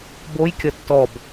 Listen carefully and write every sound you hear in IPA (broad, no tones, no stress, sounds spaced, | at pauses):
b o j kʲ ʌ tː ɔ b